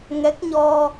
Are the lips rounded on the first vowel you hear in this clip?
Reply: no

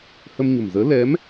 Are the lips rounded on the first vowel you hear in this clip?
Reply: no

